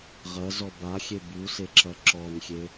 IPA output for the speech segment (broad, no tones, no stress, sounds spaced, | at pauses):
ʁ ɐ z ɔ b a xʲ e b u s e ǁ ɐ ǁ ɔ n xʲ e